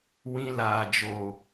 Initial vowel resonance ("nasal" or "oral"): nasal